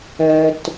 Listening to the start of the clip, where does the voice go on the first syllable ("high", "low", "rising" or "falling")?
low